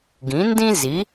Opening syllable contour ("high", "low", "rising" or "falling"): rising